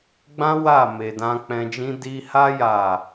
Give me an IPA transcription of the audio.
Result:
ɡ͡bã˦ wa˦˨me˨dã˧ k͡pɛ̃˧d͡ʒĩ˦ di˧ha˦ ja˦˨

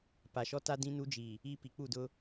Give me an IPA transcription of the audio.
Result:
pa˨ʃɔ˦ta˦ dĩ˦nu˦d͡ʒi˨ | i˦pi˨ k͡pu˦˨dʊ˦

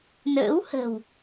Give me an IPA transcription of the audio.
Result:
nə̰ː˧˥whə̤˨˩w

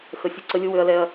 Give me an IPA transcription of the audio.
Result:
xə˧ sʲu˦ǀə˦ lʲʊ˦ wø˦ɐ̯lɛ˦ɐ̯

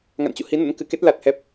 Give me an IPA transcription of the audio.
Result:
ŋa̰˧˨nt͡ɕṵ˧˨hi˨˦nə̰˧˥n kɨ˨˩ke˦˥t̚ la˨˩t̚hɛ˨˩p̚

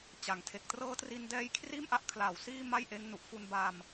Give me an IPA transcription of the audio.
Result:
t͡ɕa˨˩ŋ tʰe˨˩k̚trɤː˦˥tri˧ndɛː˦˥j kʰriː˥˩mʔa˦˥ʔ kʰla˩˦w siː˥˩ ma˥˩jʔeː˦˥ŋnu˨˩ʔ fu˧nba˧m

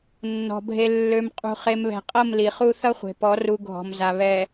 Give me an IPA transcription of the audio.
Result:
nːɔ̤˨ bʱe˨lːø˨mqʼṳ˨ χe˨mβɛ̤˨qʼʌ˦˨m li˨χu˦ θʌ˦χʷe̤˨pɔ˨˦ ru˨ ɡʱɔ̤˨mza˨ βɛ˨

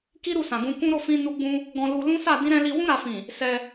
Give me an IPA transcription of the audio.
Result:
ki˦ ɾu˦˨sã˨ɡũ˧kũ˦ ɾo˦˨fĩ˧ nu˦ɡ͡bũ˦ | ɡɔ̃˧lu˧ lũ˦sa˦˨ dĩ˧ɾɛ̃˧ li˧ wũ˧ɾa˨fĩ˨ | sɛ˧

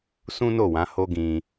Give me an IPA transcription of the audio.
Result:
sũ˦no˦˨wã˨˦ ho˦ɡĩ˧

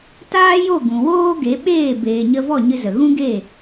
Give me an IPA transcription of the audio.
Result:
taː˦jo˦˨ ɡũ˨ woː˦ɡe˨˦ ɓeː˦˨ beː˨ɲə˧vɔ˦˨ ɲɨ˧zə˨ ɣũ˦ɡe˦˨

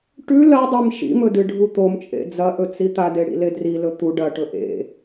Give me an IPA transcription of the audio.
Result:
ʈʉ lɐdˤim ʃḭmɵdɨɖʱu t̪omt͡ʃʼḛ d͡zɐʔɵt͡si t̪adeɽḭle drilɵ t̪u ɖɐʈɵ ʔḛ

